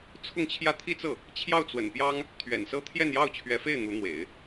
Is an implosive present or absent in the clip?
absent